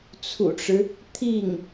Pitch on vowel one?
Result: low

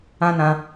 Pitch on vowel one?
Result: high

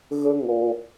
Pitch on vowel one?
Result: high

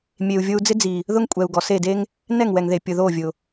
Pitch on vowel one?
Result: low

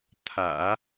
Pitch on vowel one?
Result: low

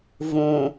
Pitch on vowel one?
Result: low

